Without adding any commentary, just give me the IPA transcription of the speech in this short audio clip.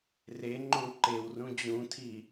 r e ŋ͡ǃ õ ǃ e w r ũ d͡ʑ ũ tʰ i

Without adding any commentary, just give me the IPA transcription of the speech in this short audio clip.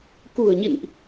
k ṳ˨˩ ə̯ ɲ ḭ˧˨ n ʔ

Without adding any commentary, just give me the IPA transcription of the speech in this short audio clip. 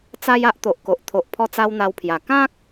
t͡s a˦ j a˦ ʔ t̪ o˨ ʔ k o˨ ʔ t̪ʰ o˨ ʔ pʰ ɔ˧ t͡s a˧ w n̪ a˧ w pʰ j a˨˩ k ã˦ k̚

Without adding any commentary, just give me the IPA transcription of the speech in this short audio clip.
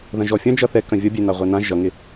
ð ɐ̃ ʒ ɔ fʲ ɐ̃ d͡ʒ ʌ θ ɛ k ɐ̃ vʲ ʌ bʲ e n a ʁʷ ɛ n ã ʒ ʌ ŋ ɪ

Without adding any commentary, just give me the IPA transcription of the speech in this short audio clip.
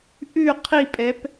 ʔ ʉ qʰ i pʼ ɛ p

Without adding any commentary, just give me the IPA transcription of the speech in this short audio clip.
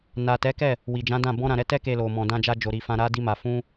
n a˨ t ɛ˨˦ k ɛ˦˨ | w i˨ d͡ʒ ã˨˦ d ã˦˨ b ɔ̃˧ ɾ ã˨ ɾ ɛ˨˦ t ɛ˦ k e˧ l o˨ m ɔ̃˨ d ã˧ d͡ʒ a˧ d͡ʒ o˨ ɾ i˨ f ã˧ ɾ a˦ d i˦ m a˧ f ũ˦

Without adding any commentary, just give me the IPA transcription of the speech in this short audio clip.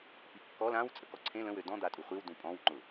p i kː ɔ l ã w t͡sʼ ə k ɔ ǀʰ ẽ l ə̃ w ø d ɔ̃ d̪ a tʼ u χʷ i w d ũ pʼ ɔ̃ w ŋ͡ǃ ʊ

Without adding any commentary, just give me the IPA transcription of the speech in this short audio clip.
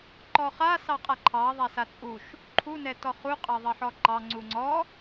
ǃ ɔ χ a s ɑ qʼ a ǃʰ ɑ ðˤ a s a t͡sʼ u ʃ | ǃʰ u n ɛ t ɔ χ u qʼ ɑ ðˤ ɑ ħ ɔ ǃ ɑ ŋ͡ǀ u ŋ͡ǀ ɔ

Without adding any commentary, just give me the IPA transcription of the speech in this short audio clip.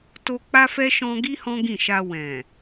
t o˧ k͡p a˦ f ɛ˦ ʃ ɔ̃˧ ɡ i˦ h ɔ̃˦ ɡ ĩ˦˨ ʃ a˧ w ɛ̃˨

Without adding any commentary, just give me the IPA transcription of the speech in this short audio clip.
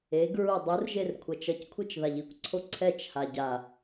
e ɡ ɹ u dˤ ɯ r ʒ e r kʷʰ ʌ t͡ʃ ʌ c kʷʰ ɯ t͡ʃ ð a ʎ i kʷ ǀʰ o ǀʰ ɛ t͡ʃ h a ɟ a

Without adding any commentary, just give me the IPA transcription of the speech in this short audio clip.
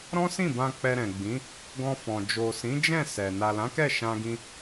ɾ ɔ̃˦ s ĩ˦˨ b ã˧ k͡p ɛ˧ ɾ ɛ̃˨ ɡ͡b ĩ˨˦ | ɡ ɔ̃˧ f ɔ̃˨ d͡ʒ o˨ s ĩ˨˦ d͡ʒ ɛ̃˦˨ s ɛ˨ n a˨ l ã˨˦ k ɛ˦˨ ʃ ã˧ ɡ ĩ˧

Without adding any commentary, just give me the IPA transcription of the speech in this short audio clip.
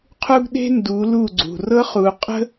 qʰ u˦ ɡ ɗ e̤˦ n d u˨˦ l u˦˨ ɡ͡ǀ ṳ˨ r ɤ˦ χ u˨ qʼ ə̤˦

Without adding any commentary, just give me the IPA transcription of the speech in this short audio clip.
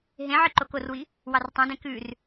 ɦ ẽ ʕ i ǃ o k o r w i | w ɑ r tˤ ẽ d ẽ k ʉ r

